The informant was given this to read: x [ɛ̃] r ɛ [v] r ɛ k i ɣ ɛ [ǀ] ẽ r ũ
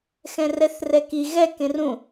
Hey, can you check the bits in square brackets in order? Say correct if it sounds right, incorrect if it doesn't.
correct, incorrect, incorrect

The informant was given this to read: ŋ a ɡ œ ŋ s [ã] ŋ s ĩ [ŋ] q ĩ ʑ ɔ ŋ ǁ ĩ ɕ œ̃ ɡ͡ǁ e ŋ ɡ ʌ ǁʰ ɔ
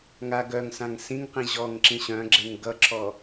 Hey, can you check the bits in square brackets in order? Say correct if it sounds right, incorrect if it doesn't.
correct, correct

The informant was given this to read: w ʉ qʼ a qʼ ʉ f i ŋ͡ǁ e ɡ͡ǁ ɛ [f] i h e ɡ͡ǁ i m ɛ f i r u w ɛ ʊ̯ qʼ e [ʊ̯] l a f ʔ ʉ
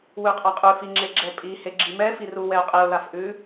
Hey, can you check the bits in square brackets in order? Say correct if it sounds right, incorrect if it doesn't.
incorrect, correct

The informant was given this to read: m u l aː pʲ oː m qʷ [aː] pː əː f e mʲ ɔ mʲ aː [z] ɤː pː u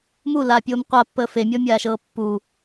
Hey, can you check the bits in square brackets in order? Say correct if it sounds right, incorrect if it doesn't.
incorrect, incorrect

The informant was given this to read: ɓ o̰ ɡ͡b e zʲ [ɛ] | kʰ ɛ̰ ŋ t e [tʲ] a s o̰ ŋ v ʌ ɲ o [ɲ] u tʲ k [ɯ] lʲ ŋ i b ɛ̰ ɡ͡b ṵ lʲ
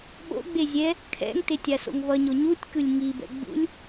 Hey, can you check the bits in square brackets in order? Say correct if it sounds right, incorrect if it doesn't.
correct, correct, correct, correct

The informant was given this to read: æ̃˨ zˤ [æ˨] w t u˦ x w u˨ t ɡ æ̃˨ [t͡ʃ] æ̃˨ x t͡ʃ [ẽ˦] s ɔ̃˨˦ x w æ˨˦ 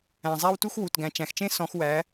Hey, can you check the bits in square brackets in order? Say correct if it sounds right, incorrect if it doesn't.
incorrect, correct, correct

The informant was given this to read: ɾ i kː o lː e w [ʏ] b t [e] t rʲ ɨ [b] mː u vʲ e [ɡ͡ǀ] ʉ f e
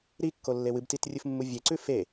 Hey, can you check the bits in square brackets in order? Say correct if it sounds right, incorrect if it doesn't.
incorrect, incorrect, incorrect, incorrect

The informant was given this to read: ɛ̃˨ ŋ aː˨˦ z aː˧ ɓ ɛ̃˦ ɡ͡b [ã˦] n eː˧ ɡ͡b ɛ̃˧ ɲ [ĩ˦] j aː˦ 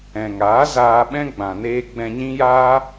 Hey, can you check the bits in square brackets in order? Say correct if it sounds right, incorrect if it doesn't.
incorrect, correct

